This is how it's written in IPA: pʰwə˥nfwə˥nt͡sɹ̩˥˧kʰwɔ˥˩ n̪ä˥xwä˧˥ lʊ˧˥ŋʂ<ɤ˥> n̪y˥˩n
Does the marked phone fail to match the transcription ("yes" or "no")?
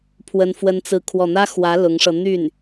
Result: yes